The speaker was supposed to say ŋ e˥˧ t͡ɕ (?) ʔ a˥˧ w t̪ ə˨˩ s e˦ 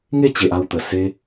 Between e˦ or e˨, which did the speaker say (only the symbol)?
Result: e˨